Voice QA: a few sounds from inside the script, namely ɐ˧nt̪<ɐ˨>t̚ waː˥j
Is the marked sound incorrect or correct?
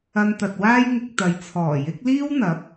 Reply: correct